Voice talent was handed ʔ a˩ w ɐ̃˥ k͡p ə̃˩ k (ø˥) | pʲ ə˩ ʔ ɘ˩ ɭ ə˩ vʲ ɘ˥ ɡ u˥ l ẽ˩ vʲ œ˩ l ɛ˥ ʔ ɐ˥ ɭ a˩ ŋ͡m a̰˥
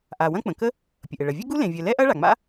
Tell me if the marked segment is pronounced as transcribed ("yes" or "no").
no